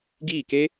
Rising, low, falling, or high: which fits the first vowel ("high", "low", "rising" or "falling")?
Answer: falling